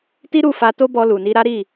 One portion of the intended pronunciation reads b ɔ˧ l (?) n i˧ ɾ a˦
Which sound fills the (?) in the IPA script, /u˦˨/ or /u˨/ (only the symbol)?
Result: u˨